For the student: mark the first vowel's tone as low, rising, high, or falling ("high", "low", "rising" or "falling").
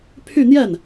falling